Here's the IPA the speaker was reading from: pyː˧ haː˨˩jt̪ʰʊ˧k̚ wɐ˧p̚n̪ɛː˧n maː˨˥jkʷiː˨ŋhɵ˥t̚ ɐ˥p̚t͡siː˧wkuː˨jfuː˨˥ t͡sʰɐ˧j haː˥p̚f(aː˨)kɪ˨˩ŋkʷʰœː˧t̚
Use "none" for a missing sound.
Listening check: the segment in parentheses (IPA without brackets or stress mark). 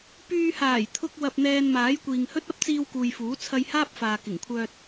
aː˨